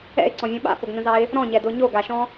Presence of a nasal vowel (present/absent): present